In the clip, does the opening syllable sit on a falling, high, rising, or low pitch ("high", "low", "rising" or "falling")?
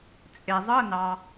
low